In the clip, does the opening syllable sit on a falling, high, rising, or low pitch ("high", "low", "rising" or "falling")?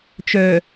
low